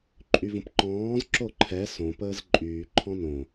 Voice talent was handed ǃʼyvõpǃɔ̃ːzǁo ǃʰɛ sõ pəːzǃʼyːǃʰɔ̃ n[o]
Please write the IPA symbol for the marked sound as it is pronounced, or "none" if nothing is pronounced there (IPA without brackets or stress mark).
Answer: õ